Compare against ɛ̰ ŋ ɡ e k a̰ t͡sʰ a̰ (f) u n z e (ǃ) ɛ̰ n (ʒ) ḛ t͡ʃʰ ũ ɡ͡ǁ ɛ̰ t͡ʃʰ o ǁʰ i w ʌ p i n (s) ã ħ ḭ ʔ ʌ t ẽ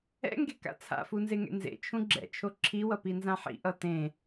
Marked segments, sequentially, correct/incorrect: correct, incorrect, incorrect, incorrect

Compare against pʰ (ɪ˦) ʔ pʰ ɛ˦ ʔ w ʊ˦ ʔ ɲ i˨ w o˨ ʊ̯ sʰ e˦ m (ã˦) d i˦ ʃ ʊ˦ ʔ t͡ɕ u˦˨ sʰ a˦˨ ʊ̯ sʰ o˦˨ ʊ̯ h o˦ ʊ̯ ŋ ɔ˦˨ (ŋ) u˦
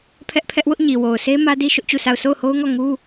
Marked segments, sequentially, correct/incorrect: incorrect, incorrect, correct

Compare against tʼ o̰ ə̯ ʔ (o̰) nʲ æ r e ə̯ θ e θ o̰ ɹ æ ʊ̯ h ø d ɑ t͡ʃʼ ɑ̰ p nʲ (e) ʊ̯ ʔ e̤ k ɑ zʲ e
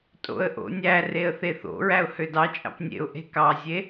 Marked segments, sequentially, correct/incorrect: correct, incorrect

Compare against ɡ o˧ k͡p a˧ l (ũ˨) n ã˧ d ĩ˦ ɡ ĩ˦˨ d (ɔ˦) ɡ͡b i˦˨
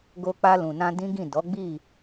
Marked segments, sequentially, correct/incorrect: correct, incorrect

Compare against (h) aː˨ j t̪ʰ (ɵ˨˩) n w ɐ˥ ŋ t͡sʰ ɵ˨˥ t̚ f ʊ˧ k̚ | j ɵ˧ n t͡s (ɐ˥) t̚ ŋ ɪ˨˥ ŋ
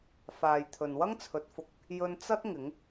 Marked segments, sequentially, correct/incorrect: incorrect, incorrect, correct

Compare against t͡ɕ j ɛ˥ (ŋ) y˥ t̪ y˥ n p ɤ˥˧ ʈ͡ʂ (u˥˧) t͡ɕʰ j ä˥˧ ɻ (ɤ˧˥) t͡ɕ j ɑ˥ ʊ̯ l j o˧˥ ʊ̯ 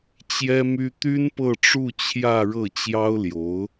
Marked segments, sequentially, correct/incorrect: incorrect, correct, incorrect

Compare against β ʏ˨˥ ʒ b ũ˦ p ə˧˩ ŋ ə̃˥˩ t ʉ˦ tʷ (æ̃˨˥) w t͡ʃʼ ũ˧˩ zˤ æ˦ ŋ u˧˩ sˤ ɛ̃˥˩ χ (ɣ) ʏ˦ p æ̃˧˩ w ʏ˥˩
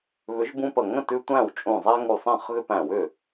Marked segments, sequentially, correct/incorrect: incorrect, correct

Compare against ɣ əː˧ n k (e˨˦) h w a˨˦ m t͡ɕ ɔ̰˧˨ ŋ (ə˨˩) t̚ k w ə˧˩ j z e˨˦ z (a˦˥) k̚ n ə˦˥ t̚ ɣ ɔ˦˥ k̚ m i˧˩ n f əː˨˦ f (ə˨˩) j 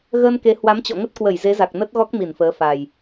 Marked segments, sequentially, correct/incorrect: correct, incorrect, incorrect, incorrect

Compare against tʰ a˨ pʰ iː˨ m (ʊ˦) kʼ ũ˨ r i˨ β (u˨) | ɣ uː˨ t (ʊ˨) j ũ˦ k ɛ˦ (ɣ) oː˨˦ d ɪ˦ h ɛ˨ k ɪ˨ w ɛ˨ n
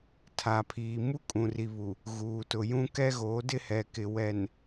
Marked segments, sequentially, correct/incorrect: incorrect, correct, correct, correct

